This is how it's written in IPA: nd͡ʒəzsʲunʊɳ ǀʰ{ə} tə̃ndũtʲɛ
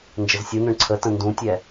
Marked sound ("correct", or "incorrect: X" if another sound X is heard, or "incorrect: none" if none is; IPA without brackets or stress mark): correct